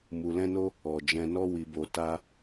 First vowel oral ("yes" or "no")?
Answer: yes